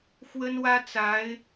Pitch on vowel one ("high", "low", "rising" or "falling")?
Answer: high